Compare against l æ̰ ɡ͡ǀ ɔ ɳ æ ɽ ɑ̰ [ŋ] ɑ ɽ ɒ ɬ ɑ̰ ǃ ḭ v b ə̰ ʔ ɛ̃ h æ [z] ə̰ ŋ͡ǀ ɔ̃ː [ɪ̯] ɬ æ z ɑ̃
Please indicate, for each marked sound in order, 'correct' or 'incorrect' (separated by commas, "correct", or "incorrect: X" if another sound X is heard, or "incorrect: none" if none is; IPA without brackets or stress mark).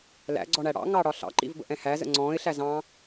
correct, correct, correct